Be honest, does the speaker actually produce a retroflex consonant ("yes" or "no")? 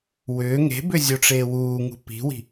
yes